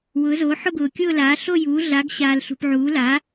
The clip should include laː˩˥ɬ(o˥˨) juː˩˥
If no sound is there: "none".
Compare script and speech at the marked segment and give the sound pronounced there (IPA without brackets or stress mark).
o˥˨